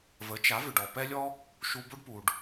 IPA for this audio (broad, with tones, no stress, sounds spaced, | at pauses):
v ə˩˥ t͡ʃ a˩˥ v ʏ˩ ɖ ɔ˩ p ɛ˥ lʲ ɔ˥ | ʃ u˧ b o˥ ɖ p u˩ ɖ